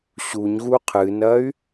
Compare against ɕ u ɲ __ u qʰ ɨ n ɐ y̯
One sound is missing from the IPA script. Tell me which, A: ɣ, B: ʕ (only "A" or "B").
A